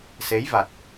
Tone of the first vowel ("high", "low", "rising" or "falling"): rising